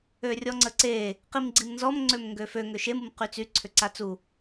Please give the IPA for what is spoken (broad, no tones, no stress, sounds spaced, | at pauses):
ø rʲ ɔ ŋ͡ǀ ə ǀ e | q i m ɡ͡ǀ i m n z ɔ m ŋ͡ǀ ø m ŋ ɡ ø f ø ŋ ø ʃ e m u m q y t͡s y ǀʰ ʏ ǀ a t͡s u